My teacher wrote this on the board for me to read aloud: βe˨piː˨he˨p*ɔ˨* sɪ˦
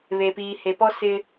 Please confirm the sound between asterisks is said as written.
no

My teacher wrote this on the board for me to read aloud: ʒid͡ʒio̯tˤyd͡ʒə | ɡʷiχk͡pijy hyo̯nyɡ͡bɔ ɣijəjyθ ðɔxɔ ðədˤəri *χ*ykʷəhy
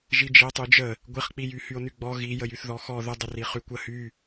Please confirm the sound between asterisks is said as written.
yes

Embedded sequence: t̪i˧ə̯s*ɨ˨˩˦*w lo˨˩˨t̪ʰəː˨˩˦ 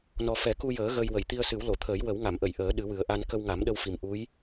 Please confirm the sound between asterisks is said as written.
yes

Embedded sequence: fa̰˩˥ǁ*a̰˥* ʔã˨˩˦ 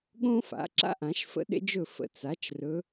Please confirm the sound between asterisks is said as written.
yes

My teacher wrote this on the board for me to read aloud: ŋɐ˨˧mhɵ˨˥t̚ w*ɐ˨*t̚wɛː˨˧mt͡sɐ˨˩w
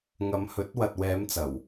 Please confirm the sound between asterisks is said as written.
yes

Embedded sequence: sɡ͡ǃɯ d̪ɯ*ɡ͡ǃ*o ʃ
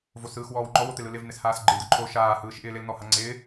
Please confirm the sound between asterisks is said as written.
no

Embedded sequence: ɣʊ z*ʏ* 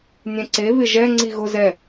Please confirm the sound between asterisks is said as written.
no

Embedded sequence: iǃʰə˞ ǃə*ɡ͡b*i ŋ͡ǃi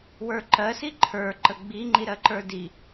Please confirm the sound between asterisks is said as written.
yes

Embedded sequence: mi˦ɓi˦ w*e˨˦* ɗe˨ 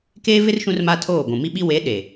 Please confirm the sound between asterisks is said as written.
yes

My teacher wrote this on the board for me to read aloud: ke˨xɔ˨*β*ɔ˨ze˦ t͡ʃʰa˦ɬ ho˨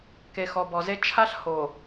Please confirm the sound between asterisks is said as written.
no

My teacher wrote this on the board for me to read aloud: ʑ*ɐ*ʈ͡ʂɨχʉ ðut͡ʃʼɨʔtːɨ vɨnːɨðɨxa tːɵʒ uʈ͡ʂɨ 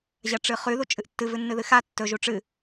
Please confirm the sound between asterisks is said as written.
yes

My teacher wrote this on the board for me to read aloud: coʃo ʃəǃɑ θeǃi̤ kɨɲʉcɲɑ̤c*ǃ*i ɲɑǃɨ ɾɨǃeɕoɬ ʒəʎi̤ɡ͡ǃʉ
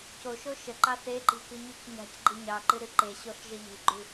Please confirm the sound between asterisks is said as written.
no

